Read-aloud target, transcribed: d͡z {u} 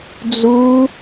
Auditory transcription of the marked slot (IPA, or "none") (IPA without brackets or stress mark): u